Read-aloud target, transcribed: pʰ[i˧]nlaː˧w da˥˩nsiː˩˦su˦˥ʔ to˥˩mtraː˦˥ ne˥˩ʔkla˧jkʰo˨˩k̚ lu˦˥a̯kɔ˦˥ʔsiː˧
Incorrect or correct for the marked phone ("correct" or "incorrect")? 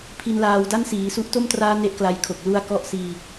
correct